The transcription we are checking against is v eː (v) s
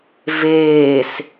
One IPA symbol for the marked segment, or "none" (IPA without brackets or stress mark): none